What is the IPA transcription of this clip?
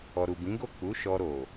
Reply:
ɔ˨ ɾ u˨ b ĩ˨˦ ɡ o˦˨ k͡p u˨˦ ʃ ɔ˧ ɾ o˨

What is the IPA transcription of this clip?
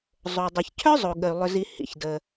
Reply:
zˤ o˩ dˤ ʏ˩ ç cʰ œ˥ zˤ o˩ ɠ ə˩ y̯ lˠ ʏ˩ z i˩ h ḭ˩ ç d ə˩

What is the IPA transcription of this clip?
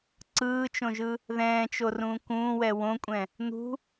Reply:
ǀ ɯː t͡ʃ õ ʒ ɯ | ð ɛ̃ː t͡ʃ o r ũː k ũː w ɛ w õ kʷʼ ɛ̃ | n̪ ṳ

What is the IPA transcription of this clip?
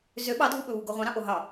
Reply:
z ø ɓ ɑ dʱ u ɓ ɵ β u ɡ o ʁʷ ɑ̃ ɾ ɑ̃ ʔ o ɦ ɑ

